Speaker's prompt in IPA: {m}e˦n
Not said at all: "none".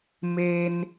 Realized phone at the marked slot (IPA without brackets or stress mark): m